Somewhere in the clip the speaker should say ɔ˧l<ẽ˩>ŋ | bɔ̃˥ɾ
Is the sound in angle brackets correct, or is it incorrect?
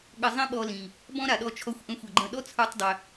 incorrect